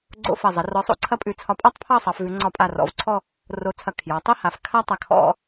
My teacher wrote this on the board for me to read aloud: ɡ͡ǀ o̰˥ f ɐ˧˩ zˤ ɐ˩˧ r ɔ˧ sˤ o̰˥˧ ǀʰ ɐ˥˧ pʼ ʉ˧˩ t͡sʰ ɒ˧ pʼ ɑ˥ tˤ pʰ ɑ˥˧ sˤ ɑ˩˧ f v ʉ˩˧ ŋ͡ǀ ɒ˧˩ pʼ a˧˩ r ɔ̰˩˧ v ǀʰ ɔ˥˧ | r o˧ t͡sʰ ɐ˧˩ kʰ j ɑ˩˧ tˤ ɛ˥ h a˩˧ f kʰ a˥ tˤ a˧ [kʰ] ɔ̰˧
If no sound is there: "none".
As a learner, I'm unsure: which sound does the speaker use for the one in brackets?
kʰ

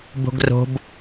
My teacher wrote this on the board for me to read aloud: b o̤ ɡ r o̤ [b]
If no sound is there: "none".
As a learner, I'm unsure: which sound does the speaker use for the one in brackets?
b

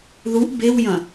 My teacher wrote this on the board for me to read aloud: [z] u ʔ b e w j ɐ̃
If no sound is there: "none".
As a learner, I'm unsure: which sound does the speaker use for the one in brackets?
ð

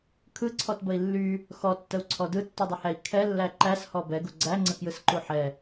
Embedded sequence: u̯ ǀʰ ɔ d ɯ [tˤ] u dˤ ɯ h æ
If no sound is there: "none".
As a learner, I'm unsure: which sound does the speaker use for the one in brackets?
tː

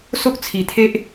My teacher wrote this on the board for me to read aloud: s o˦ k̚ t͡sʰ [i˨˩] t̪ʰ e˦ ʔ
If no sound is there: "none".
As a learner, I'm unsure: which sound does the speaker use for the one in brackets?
i˨˩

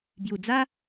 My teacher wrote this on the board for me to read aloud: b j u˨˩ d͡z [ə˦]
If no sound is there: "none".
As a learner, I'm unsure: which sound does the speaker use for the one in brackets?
a˦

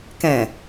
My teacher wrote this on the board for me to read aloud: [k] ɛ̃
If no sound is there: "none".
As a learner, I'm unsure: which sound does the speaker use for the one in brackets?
k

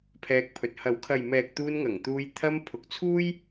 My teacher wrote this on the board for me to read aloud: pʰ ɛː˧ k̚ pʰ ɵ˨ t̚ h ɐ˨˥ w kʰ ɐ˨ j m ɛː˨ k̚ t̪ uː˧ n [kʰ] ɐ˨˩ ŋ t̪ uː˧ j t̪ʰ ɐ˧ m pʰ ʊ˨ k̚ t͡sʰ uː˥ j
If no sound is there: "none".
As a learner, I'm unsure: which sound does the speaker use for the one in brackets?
ŋ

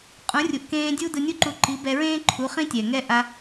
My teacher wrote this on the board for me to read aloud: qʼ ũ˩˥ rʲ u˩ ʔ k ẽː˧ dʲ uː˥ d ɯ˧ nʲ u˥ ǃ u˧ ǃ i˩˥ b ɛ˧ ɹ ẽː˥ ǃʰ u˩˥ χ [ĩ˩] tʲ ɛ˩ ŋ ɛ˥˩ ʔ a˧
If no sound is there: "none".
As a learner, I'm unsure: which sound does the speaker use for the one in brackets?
ĩ˥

